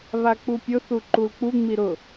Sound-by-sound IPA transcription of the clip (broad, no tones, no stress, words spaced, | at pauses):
βak͡pupʲʊ θuǃulk͡pu ŋ͡miɾʊ